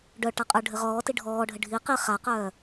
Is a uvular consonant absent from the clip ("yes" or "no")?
no